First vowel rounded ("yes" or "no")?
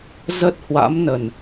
no